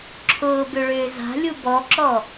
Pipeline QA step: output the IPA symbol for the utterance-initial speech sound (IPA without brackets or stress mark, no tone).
ǁʰ